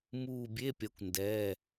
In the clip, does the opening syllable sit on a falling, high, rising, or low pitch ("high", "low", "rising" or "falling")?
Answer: falling